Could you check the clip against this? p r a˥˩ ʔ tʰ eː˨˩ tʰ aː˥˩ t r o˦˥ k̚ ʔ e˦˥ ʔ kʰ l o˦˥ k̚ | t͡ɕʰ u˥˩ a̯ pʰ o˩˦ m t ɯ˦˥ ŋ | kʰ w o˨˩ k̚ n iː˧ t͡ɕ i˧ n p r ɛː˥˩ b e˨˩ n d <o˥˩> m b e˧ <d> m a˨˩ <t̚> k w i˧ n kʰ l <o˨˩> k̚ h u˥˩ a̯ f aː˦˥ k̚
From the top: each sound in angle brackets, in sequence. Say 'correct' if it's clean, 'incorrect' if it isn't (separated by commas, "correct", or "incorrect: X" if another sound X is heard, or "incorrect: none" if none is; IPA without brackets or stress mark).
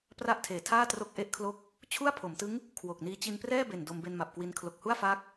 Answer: incorrect: o˧, incorrect: n, incorrect: p̚, correct